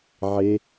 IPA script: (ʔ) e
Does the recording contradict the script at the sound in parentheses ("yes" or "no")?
yes